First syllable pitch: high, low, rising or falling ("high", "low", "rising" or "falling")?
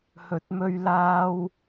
rising